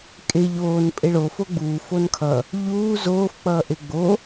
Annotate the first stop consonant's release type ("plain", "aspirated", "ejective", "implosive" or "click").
ejective